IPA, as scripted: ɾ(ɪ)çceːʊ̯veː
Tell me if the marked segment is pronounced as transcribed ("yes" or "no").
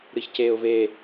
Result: no